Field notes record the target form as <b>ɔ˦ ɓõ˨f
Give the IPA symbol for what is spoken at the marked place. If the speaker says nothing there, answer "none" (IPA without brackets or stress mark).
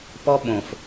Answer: p